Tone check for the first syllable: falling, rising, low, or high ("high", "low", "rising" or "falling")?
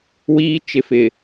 high